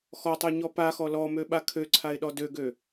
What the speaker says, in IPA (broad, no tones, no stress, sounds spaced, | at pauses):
x ɔ tˤ ø ɲ ɔ p a x ɔ l ɔ m ø ɓ a kʰ ø ǀʰ a ɪ̯ ɗ ɔ d ø ɡ ø